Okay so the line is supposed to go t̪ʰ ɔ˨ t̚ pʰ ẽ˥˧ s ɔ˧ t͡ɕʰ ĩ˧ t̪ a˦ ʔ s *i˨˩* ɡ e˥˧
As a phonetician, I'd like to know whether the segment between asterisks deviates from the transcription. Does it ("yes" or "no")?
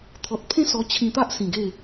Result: yes